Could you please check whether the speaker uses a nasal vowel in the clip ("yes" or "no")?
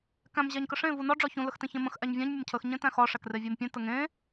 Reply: yes